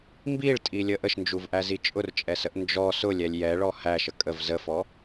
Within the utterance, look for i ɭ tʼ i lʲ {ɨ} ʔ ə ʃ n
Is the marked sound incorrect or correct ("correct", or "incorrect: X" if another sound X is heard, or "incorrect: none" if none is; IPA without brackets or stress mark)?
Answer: incorrect: ə